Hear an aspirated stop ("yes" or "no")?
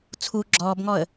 yes